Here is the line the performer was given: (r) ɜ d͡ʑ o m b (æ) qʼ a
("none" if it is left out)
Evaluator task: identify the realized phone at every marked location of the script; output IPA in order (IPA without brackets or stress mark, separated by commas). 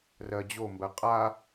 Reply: r, ɜ